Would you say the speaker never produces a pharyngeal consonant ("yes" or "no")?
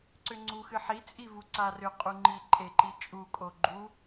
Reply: no